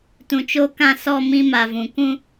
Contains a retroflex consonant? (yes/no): no